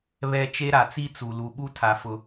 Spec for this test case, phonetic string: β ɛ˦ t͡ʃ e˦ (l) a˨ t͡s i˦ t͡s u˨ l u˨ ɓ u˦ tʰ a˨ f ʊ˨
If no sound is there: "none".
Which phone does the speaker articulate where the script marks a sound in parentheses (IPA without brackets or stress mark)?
ɾ